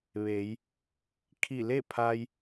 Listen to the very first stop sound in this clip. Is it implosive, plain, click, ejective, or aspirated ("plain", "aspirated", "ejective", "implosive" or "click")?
aspirated